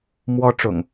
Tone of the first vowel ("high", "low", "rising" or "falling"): high